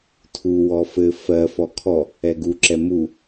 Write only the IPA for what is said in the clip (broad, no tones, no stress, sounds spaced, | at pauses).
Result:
tʰ u w ɔ f ɘ f ɜ f ɔ kʰ ɔ | ɛ ɡ u ǁ ɛ m u